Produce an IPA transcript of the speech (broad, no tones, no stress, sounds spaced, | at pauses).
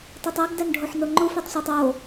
tˤ æ tˤ æ ɡ d æ n ɖʱ o ħ n o ŋ͡ǃ u f e tˤ sʷ æ tˤ o